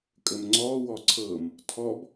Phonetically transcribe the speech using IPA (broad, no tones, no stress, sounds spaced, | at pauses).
kʼ ə m ŋ͡ǀ ɔ w ɔ ǀʰ ɤ m | tʰ ɔ b